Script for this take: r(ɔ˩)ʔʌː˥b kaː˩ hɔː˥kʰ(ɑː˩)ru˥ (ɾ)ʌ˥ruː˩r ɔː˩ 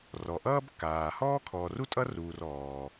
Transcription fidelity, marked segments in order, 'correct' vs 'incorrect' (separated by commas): correct, incorrect, incorrect